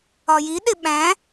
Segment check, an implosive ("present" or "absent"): present